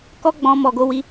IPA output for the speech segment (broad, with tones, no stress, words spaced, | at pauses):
kɔ˦ɡ͡bɔ̃˧ mɔ˨ɡo˧wi˧